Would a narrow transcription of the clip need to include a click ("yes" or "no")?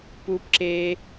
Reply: yes